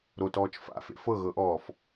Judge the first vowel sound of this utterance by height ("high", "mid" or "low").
mid